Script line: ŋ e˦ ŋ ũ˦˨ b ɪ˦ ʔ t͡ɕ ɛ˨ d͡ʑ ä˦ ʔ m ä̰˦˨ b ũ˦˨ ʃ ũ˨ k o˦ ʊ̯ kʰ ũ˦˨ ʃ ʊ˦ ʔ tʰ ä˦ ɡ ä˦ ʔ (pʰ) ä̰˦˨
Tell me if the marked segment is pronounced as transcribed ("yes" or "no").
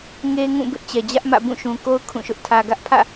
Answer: yes